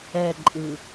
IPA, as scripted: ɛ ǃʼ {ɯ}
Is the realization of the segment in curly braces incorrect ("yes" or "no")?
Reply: no